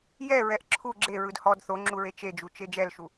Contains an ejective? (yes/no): no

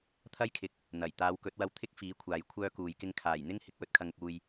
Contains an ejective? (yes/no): no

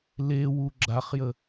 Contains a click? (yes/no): yes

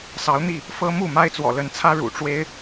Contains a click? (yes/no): no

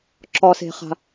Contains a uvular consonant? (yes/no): yes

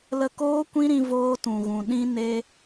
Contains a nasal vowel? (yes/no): yes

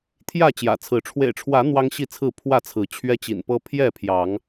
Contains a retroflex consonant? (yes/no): yes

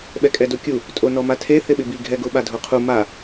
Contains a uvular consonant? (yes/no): yes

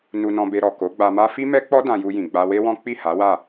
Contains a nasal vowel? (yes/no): yes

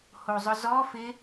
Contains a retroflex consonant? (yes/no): no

